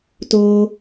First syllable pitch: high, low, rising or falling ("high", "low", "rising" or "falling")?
high